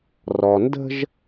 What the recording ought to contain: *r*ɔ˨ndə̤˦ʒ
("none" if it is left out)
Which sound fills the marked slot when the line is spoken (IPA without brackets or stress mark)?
r